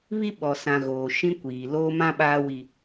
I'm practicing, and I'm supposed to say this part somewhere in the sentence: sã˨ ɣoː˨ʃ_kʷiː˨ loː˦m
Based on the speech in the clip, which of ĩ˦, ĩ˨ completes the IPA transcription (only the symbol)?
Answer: ĩ˦